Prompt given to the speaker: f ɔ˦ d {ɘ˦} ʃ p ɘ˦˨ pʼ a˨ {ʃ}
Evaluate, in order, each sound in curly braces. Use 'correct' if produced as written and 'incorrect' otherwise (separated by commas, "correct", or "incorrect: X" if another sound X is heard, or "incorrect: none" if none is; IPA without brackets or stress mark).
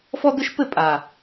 correct, incorrect: none